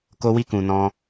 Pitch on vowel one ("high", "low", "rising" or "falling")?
high